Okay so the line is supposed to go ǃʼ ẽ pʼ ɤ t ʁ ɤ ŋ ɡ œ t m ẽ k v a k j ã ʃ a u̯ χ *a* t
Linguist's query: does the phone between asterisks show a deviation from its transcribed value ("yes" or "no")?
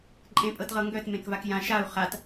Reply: no